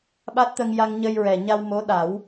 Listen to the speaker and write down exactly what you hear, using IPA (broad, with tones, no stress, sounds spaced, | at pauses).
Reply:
ɓ a˦˥ t̚ t̪ ə˧ ŋ j a˧ ŋ ɲ ə˧ j ɹ ɛ˨˩ ɲ a˧ w m o˧˥ ɗ a˨˩˦ w